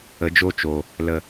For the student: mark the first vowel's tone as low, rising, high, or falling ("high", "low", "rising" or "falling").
rising